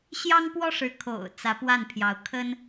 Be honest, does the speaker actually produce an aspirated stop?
yes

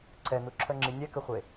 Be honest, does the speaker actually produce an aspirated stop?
yes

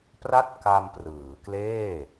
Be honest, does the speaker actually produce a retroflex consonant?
no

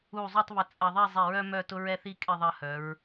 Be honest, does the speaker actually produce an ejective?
yes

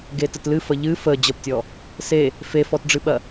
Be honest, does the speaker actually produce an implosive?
yes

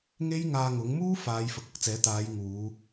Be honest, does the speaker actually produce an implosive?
no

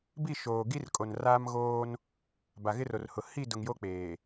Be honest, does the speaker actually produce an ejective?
yes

